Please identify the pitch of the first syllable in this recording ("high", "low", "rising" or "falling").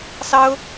high